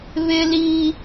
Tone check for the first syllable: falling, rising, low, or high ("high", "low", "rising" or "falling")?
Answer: high